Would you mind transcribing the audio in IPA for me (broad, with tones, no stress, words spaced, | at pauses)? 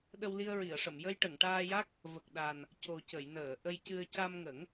ɗə˧wli˧ə̯ɹi˨˩˨ə̯ʂə˨˩˨m jə˧jʈə˨˩˨ŋʈaː˧ja˦˥k̚ | və˨˩k̚ɗa˨˩n | co˨˩cə˨˩˨jnəː˨˩˨ ʔə˧j cɨ˧ə̯ ca˧mŋə˨˩˦ŋ